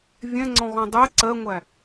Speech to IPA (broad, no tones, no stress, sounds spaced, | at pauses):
vʲ ɛ̃ ŋ͡ǀ ɔ̃ ɣ ɔ̃ dˤ ɛ ǀ ɜ ŋʷ æ